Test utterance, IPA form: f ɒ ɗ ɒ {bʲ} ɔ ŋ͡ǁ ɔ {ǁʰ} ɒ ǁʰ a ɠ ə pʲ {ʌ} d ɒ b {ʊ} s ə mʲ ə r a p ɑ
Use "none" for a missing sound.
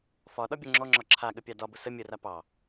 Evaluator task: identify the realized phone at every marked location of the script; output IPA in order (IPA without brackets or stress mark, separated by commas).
bʲ, ŋ͡ǁ, ɑ, ʊ